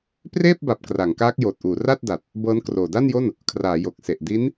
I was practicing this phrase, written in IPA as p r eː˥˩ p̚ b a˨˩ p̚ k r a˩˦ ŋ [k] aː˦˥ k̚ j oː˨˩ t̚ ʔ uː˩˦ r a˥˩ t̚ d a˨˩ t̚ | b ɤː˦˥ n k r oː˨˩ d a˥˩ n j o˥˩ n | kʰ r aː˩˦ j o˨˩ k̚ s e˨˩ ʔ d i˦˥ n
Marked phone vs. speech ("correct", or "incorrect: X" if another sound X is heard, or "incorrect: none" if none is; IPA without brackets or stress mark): correct